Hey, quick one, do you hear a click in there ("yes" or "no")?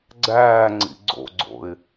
yes